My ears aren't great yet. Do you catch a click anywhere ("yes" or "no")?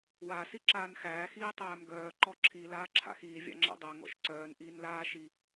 yes